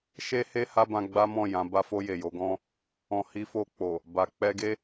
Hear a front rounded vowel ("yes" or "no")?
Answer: no